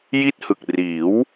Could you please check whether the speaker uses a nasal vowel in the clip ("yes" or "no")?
no